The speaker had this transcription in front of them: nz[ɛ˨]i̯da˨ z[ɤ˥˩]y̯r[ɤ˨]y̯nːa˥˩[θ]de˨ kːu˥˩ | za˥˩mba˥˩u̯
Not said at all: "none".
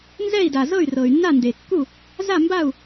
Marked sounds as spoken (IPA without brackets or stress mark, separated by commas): ɛ˥˩, ɤ˥˩, ɤ˨, n